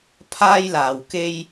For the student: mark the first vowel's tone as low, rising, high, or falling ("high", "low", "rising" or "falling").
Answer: high